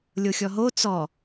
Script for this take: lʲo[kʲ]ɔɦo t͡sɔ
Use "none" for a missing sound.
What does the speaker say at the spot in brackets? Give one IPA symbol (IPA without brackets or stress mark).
xʲ